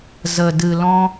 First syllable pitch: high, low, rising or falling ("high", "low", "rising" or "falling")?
low